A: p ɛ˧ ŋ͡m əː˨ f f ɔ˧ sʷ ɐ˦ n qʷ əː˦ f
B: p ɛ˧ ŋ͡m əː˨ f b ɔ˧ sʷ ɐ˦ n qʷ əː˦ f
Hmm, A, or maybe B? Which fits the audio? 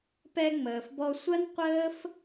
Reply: B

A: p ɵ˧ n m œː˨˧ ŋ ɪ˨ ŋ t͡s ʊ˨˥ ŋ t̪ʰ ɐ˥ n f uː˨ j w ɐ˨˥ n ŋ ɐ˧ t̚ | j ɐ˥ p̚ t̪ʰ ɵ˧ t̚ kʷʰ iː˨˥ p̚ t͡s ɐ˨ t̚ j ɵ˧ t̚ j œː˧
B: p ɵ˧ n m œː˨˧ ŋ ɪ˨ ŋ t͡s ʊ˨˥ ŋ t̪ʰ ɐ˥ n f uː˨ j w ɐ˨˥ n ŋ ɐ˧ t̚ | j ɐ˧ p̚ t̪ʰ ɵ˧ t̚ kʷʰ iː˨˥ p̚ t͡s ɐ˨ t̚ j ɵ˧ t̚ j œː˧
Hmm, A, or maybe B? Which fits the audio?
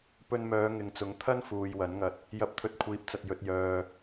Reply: B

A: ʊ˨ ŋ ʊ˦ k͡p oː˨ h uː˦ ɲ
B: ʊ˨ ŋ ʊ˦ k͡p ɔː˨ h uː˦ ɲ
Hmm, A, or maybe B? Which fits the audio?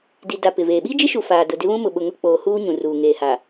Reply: A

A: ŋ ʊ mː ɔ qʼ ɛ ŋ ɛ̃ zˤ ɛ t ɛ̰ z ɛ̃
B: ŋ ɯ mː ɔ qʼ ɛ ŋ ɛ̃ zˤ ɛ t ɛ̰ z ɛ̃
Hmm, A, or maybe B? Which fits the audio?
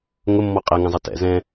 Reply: A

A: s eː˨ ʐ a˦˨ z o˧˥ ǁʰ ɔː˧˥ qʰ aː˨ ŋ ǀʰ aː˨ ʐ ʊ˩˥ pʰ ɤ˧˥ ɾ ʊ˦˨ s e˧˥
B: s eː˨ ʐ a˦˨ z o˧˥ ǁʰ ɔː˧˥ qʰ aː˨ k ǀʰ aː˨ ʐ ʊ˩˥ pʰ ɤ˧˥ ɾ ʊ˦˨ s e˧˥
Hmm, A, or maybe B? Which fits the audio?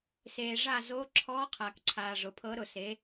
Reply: B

